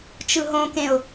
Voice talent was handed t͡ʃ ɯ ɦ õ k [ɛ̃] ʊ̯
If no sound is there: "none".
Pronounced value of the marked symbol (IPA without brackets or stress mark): ẽ